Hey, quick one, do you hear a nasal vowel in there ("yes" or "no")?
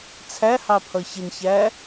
no